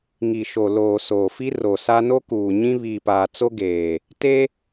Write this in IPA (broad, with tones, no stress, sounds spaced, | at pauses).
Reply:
ŋ i˨ ʃ o˨ l oː˨ s oː˨ f i˦ r o˨ s a˦ n o˦ k uː˨ ɲ ĩ˦ β iː˨ p aː˨ t͡s o˦ ɡ eː˨ | t e˦